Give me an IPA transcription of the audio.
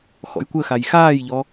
xɔ̰jkʷəxaj xaːjʎɔ

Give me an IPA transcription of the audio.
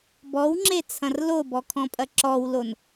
bɔwŋ͡ǁet͡sʰɐ̃r lobɔkʰɔ̃pʼɐ ǁɔwlon

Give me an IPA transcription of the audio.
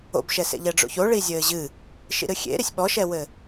o̰bʃɛsḛ ʎɛɖ͡ʐo̰ço ɭizʲɘːʑɨ | ʃḭɾɨxʲḛ ɾisʲɓɔʃɛwɘ

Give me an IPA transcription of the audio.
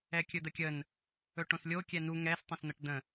ɛkʲɵd̪əkʲən | ɵʈõslʲo kʲɛnu ŋɛs tˤə̃sn̪əʈd̪ə̃

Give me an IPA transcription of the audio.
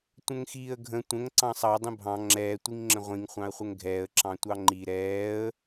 tʷə̃ŋxiːə̯ɡʱə̃ tʷə̃ŋ ǀɑ̃sˤɑ dˤə̃bʱɑ̃ ŋ͡ǁɛː tʷiŋŋ͡ǁə̃ʁʷĩŋ χʷɑ̃ə̯χʷəŋɡʱɛːə̯ ǁɑ̃tʷɑŋ͡ǃi ɾɛːə̯

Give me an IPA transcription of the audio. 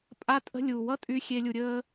pʼa˦tʼə̤˦ lʲu˨wʌ˦ tʼy˦xʲe˦ lʲu˧ɾʲəː˦

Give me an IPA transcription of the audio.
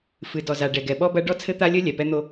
fɨ˨dɔ˨za˨ ɖɛ˨ɡɛ˨ɓɔ˦bɐ˦ ɖɔ˦t͡sʰɘ˦t̪a˦lʲɘ˦ lʲɛ˨pɛ˦n̪o˦

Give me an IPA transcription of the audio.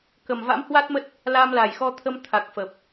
kə˨˩mva̰˧˥mhwa˦˥t̚mə˦˥t̚ | la˧mla˨˩jxɔ˧t̪ʰə˧m t̪ʰa˨˩k̚fə˨˩p̚

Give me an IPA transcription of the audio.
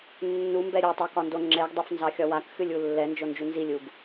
nːumbɛ ɾʲotˤokɒndo ŋ͡ǁɛɡdˤefnzɑxʲɒ wakxɨlʲu lːɛnd͡ʒond͡ʒu nzilʲuɡ

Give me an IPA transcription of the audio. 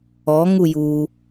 ɔ ŋuju

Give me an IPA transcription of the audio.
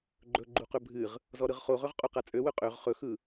ɡ͡ǃɵ ɡ͡ǃuqɵbʱɨʁ | zɔɾɯʁχoʁɵʁ qʼoqat͡sʼøwɵ qʼøʁ χɵxɯ

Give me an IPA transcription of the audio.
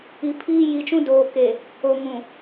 i˨pʰiː˦ji˨t͡ʃũ˦ doː˨ ke˨ | o˨ŋũ˨

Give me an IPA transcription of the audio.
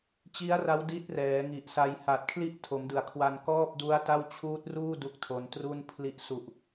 t͡ɕi˦˥a̯ra˦˥w di˦˥t̚rɛː˩˦ŋi˨˩ʔsa˧j ha˨˩t̚kʰli˦˥ʔ tʰo˩˦mdɯ˩˦a̯kʰwa˧n kɔː˥˩p̚du˦˥a̯ta˥˩w t͡ɕʰuː˦˥t̚ruː˥˩ du˦˥k̚tʰo˧n tru˥˩n pʰli˥˩ʔ su˨˩ʔ

